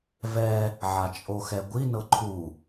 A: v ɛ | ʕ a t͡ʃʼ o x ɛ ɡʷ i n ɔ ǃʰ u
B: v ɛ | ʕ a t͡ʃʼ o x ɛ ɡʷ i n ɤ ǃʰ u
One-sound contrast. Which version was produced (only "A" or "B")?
B